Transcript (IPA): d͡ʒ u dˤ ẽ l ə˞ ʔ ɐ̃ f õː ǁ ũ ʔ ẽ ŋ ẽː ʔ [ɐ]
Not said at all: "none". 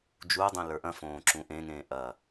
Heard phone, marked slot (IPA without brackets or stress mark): ɐ